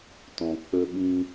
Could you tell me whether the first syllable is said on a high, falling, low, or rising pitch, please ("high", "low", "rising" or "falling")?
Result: low